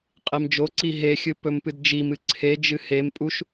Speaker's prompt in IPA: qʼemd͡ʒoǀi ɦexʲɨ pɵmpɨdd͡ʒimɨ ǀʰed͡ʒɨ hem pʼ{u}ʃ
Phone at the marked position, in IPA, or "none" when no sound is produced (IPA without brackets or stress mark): u